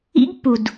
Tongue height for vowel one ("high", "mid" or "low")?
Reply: high